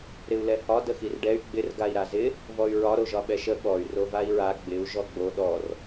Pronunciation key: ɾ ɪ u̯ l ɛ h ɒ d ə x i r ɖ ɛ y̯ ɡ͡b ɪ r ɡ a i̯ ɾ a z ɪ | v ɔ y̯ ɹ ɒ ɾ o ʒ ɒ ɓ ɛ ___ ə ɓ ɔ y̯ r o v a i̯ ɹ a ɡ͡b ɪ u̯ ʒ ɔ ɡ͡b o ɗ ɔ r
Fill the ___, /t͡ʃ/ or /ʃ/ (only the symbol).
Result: ʃ